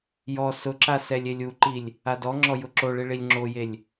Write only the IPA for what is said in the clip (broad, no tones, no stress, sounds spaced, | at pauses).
j ɔ s ʊ ǁ a s ɛ lʲ e lʲ u ǃ i lʲ | a d ɔ ŋ͡ǁ ɔ j ʊ ǁ o ɭ i ɭ i lʲ ŋ͡ǁ o j e lʲ